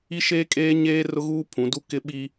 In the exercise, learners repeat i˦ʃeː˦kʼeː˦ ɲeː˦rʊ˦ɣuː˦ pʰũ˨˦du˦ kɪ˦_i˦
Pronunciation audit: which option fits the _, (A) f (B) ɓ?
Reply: B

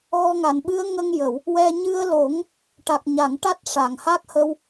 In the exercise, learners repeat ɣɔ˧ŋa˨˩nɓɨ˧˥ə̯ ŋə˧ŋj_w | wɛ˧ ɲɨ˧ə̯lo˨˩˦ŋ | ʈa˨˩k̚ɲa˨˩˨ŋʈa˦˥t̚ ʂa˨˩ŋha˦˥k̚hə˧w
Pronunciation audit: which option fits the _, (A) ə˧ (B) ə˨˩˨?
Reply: B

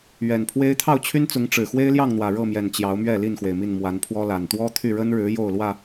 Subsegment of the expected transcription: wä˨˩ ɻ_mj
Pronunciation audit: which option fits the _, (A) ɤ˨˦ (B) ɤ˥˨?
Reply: B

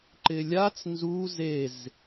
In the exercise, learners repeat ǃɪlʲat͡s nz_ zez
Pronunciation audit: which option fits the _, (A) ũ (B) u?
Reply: B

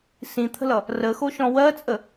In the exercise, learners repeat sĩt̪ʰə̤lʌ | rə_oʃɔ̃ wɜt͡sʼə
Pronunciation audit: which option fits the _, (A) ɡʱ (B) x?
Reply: B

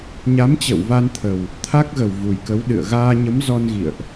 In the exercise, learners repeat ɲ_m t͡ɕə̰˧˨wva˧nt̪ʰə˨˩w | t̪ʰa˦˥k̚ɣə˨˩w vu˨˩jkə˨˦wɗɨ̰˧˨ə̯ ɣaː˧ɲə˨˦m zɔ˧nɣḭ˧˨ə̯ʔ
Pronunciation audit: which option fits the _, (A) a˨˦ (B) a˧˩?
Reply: A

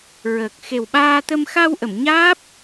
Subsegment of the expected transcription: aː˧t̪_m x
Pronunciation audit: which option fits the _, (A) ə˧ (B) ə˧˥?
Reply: A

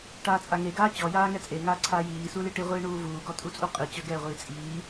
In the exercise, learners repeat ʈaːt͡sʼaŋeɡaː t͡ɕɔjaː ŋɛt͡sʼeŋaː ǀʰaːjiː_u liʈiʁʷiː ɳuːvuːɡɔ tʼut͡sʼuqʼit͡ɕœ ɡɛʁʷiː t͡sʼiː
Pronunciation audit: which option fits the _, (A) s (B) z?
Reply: A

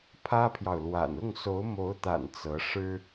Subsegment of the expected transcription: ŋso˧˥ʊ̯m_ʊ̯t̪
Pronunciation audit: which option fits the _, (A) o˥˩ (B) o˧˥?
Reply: B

